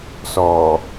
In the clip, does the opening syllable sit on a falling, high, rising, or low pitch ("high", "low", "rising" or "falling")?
low